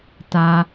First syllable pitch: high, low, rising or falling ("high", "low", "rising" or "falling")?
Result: low